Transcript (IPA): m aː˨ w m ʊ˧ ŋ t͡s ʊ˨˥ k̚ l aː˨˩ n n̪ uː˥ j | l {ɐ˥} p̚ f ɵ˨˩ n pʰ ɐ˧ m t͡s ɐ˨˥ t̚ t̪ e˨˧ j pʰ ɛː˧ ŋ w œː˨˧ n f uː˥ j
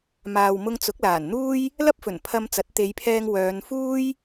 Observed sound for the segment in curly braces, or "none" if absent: ɐ˥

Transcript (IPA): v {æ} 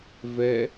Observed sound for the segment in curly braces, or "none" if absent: ɛ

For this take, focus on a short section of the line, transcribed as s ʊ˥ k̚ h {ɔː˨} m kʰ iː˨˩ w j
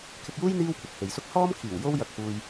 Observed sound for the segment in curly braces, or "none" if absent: ɔː˥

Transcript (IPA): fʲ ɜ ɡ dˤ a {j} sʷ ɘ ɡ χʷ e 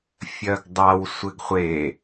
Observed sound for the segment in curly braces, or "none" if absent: w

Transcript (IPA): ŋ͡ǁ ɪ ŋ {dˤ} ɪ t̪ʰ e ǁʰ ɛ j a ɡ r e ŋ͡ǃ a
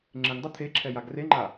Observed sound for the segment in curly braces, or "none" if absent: dˤ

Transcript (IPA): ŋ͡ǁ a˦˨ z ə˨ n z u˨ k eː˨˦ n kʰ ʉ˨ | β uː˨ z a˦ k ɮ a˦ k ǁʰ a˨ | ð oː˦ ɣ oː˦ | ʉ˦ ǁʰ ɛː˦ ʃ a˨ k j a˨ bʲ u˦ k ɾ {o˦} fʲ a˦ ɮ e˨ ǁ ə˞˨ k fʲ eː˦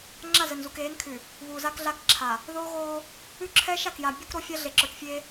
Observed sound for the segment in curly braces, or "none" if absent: o˦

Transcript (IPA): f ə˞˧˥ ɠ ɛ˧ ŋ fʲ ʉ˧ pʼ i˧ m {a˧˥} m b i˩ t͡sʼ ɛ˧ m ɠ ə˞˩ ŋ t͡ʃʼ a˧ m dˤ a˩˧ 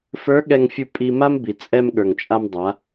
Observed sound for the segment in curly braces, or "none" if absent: a˥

